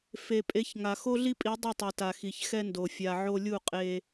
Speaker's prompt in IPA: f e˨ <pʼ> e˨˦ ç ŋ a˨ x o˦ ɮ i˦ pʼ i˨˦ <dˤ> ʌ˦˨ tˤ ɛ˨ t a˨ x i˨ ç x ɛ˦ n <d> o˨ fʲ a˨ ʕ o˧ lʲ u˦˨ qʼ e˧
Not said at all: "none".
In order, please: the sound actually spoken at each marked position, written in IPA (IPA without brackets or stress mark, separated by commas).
pʼ, dˤ, d